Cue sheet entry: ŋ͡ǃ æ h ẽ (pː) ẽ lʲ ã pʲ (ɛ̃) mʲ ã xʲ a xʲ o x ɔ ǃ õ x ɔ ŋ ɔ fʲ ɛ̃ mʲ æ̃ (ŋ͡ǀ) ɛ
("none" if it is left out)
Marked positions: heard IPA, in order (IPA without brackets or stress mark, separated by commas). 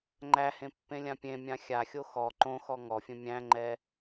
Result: pː, ẽ, ŋ͡ǃ